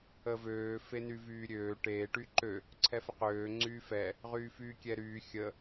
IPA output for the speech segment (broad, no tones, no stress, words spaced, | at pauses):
əvøː fenyvyːɾʲøː ʈeː ʈyǃø | ǀʰɛfəqøː ŋ͡ǀyːfɛ | ʁyːfyːkʲɛɾyː xʲə